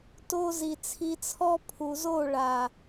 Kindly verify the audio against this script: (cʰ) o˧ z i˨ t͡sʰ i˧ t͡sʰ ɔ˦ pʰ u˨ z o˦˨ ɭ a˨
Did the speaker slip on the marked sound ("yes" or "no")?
yes